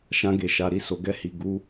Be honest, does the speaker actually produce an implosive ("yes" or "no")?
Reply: no